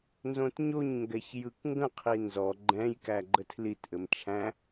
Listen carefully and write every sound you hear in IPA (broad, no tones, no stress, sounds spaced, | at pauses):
n z õ t ɲ o ɲ ŋ ɡ ɛ ç j ɯ k ŋ ɡ ə̃ qʰ i n z ɔ ɡ͡ǃ ɛ̃ j k æ ɡ͡ǃ ə tʰ l i t ʔ ɘ m t͡ʃʰ æ̃